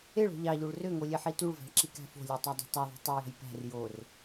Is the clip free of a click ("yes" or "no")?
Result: no